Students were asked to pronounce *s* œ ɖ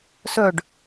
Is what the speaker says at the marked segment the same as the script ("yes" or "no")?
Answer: yes